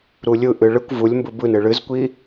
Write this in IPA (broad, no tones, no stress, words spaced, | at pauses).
ɾulʲɯʔɨ ɭɨkʷ vulʲmbɯ bɯnɨ ɭɨzkʷi